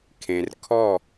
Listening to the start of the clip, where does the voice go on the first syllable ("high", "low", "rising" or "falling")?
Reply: low